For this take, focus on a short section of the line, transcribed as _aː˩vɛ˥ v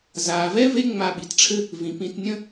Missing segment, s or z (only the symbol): z